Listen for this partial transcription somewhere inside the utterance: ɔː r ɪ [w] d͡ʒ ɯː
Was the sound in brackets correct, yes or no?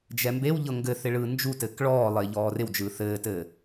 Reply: yes